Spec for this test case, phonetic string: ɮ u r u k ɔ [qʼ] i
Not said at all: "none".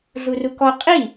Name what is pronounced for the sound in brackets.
qʼ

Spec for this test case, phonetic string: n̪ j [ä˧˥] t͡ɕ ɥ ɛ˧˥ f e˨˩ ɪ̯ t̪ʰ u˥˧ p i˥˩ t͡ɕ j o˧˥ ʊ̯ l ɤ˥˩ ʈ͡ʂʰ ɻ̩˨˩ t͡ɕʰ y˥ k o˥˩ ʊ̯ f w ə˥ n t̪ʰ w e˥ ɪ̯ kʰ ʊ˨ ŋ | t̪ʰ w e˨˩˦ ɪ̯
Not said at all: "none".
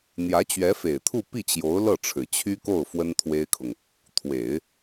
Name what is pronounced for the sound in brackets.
ä˧˥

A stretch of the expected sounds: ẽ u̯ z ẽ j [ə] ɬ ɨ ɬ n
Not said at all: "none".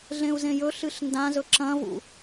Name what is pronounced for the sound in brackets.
ɵ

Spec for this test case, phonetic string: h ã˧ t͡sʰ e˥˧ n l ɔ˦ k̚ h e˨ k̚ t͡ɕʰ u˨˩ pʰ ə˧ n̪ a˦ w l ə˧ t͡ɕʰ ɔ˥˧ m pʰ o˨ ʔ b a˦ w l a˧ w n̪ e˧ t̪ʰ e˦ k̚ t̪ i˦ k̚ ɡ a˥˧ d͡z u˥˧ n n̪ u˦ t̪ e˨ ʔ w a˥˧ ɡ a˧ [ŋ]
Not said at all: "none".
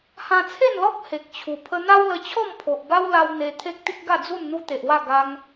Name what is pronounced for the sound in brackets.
ŋ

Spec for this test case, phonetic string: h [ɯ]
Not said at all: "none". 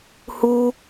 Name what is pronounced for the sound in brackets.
u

